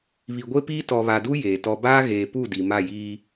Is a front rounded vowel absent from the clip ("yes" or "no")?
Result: yes